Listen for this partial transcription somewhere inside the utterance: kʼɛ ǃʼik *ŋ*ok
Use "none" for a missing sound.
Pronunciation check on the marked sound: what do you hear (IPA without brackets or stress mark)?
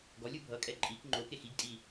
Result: ŋ͡ǃ